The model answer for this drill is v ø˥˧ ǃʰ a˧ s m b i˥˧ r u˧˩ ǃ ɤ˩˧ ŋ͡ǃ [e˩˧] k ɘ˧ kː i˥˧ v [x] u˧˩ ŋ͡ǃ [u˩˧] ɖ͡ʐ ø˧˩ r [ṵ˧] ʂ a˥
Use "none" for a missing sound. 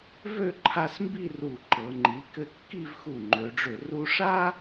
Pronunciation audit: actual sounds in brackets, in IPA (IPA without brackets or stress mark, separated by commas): i˩˧, x, ø˩˧, u˧